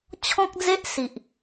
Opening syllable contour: high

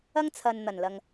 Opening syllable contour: high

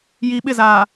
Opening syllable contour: low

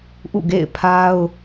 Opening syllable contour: falling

